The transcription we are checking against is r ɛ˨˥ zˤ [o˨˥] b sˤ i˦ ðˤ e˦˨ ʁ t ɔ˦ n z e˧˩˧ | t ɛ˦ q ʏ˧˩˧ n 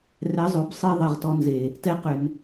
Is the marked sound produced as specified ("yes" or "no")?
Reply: yes